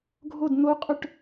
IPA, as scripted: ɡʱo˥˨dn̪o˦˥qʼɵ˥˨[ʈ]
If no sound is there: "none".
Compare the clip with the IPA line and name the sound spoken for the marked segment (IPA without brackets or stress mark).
ʈ